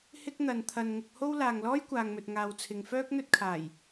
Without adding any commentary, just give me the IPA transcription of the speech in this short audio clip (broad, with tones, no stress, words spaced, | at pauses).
hɪ˥k̚n̪ɐ˨nt̪ʰɐ˧n ŋʊ˧k̚ho˥w laː˨ŋlɔː˥jkʷaː˨ŋmɵ˨t̚ ŋaː˨wt͡sʰɪ˨ŋfœː˥k̚ n̪ɵ˥t̚kʰaː˨˩j